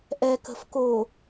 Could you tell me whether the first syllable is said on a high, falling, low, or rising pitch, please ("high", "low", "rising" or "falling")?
low